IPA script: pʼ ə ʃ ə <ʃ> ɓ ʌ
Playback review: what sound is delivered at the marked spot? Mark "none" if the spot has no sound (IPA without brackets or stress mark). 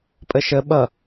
none